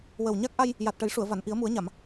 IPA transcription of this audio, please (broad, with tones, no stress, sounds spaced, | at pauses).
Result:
w ə˨˩ w ɲ a˦˥ k̚ ʔ a˧ j | j a˨˩ t̚ ʈ ə˨˩˦ j ʂ u˨˩˨ ə̯ v a˨˩˨ n ʔ i˨˩˦ ə̯ m u˨˩˦ ə̯ ɲ a˨˩˨ m